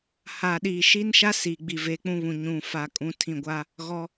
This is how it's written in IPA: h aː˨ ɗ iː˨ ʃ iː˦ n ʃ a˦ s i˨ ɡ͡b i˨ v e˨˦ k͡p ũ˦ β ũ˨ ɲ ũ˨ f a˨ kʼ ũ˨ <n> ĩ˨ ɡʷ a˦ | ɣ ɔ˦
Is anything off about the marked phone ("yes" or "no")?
yes